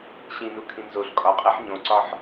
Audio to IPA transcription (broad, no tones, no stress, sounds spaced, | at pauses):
ɕ ĩ n u kʰ ĩ n z o ɬ kʼ ɒ qʼ e ħ ɲ õ ǀ ɒ ħ